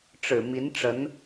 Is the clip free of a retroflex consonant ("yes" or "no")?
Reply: no